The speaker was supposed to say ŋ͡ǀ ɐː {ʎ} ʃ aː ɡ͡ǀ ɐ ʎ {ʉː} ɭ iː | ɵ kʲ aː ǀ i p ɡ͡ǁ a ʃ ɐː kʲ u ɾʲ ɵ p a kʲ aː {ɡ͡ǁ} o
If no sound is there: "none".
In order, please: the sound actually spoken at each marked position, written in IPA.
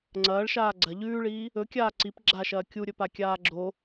ɭ, ʉː, ɡ͡ǁ

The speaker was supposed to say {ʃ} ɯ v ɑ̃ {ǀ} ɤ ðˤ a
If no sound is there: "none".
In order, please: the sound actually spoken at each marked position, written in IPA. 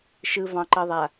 ʃ, ǃ

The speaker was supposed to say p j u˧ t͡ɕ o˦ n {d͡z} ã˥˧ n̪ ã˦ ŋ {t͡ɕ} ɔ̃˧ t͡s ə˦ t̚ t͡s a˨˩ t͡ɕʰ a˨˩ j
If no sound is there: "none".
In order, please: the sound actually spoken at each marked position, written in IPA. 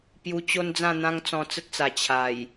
d͡z, t͡s

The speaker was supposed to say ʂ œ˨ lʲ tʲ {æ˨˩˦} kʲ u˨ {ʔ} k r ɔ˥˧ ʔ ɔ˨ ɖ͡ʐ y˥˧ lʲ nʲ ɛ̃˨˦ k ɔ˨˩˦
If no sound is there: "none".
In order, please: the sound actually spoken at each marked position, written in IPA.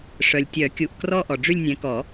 œ˨˩˦, ʔ

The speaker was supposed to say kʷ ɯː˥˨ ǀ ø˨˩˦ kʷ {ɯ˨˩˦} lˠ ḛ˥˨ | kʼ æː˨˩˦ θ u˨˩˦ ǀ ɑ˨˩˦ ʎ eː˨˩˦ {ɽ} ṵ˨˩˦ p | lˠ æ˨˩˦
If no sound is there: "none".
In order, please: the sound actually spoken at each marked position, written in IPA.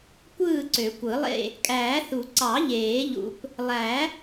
ɯ˨˩˦, ʎ

